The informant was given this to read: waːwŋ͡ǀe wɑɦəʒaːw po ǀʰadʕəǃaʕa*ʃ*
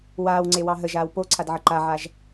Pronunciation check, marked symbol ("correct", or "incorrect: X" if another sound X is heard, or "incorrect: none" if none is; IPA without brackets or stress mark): incorrect: ʒ